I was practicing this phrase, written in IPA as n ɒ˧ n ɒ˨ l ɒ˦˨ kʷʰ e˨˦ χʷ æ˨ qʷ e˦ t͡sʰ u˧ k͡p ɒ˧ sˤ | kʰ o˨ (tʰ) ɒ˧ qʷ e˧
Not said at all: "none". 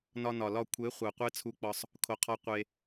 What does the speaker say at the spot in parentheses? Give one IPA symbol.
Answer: qʰ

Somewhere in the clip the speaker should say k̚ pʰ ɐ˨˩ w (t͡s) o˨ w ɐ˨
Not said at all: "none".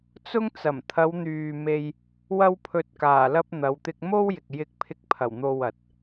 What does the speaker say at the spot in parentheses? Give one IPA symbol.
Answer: n̪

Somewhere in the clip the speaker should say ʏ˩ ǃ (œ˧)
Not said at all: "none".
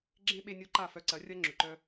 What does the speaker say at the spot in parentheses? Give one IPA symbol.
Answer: œ˧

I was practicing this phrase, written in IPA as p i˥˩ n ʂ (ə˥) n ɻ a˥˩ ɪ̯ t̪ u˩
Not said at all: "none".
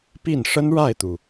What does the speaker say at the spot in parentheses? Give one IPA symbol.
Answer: ə˥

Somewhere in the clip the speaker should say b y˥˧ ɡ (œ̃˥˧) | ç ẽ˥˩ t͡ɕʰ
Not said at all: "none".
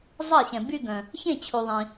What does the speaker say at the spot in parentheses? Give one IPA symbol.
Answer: œ̃˨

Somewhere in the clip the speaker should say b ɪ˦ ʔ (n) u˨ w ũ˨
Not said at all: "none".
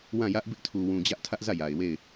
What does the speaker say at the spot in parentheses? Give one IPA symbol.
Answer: tʰ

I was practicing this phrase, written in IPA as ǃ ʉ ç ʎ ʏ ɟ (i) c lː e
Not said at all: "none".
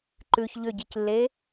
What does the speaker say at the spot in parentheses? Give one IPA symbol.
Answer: i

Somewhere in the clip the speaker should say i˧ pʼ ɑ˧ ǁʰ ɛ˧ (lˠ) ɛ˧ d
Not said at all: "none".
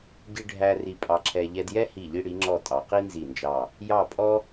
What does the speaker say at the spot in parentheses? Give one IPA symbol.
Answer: ʎ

